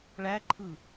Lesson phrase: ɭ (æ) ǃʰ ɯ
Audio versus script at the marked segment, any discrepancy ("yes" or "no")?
no